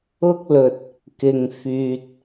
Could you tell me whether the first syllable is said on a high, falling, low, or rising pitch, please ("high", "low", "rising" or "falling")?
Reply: high